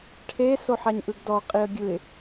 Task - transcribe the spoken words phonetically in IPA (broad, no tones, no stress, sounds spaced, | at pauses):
ʈʰ e s o ħ a ɲ ʔ ɯ ɡ d ɔ qʼ i ə̯ ɡʲ ɯ ɪ̯